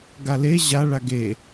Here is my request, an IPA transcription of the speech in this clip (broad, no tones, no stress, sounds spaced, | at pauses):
ɡ a l e ʑ a ɭ a ɡ e